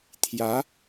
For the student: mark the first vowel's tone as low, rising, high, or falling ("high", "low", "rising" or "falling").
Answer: rising